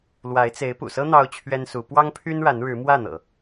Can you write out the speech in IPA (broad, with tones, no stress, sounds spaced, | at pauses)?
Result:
l w a˧˥ ɪ̯ t͡s e˧˥ ɪ̯ p ṵ˨˩ s ɤ˥ n̪ ɑ˥ ʊ̯ t͡ɕʰ ɥ ɛ˥ n s u˧˥ p w ɑ˥ ŋ pʰ y˥ n ɻ a˧˥ n ɻ ɻ̩˧˥ m w ä˥˩ n̪ ɤ̰˨˩˦